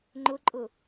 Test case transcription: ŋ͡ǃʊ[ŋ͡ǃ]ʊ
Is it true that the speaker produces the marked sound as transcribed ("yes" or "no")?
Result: no